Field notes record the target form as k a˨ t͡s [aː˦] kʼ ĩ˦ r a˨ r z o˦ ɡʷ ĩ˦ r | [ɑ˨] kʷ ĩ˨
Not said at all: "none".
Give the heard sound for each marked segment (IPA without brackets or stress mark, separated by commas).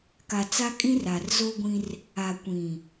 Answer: a˦, a˨